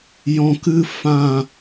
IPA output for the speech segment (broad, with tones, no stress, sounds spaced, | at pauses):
j ɔ̃˨ k ɨ˧ f ã˦˨